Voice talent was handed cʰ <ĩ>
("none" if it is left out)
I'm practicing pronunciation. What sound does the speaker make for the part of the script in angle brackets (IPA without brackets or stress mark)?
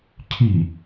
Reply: i